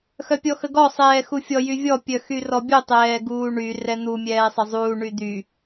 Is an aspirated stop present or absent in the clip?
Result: absent